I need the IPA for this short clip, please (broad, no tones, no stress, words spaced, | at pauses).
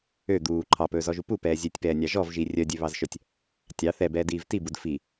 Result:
ø d̪uː ǃʰɑpɵːzɔʒu pupɛː zʲøtʲpɛːnʲɑ ʒɔvʒi rʲœdʲøβɑzʃœtʲ | tʲɑ θɛbɛːdiːv tibud fi